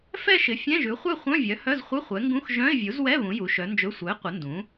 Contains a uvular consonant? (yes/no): yes